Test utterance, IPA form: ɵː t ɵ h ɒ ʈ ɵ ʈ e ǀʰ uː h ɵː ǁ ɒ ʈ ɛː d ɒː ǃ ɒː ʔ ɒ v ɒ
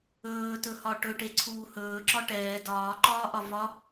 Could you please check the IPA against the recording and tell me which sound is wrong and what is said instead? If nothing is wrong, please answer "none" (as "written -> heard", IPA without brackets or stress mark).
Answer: none